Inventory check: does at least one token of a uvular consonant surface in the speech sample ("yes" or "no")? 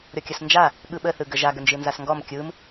no